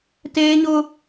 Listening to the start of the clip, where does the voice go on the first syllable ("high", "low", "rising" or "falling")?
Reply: high